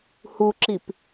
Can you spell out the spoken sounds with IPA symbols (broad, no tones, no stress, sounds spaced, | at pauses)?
h u ǁ i p